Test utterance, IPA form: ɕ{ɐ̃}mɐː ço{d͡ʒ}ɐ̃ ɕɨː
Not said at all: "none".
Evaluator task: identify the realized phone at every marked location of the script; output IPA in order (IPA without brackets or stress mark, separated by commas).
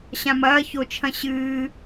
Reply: ã, t͡ʃʰ